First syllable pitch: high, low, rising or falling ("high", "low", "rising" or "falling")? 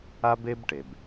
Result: high